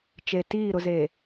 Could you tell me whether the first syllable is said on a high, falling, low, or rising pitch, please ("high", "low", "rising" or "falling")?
low